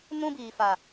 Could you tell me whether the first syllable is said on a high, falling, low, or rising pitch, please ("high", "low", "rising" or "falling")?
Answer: high